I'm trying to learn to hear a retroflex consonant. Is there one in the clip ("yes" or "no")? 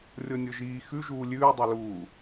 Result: no